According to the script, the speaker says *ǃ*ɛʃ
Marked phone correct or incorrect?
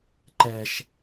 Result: correct